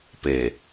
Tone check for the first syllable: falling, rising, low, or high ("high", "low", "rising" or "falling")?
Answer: low